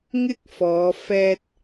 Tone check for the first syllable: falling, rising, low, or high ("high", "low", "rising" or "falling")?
high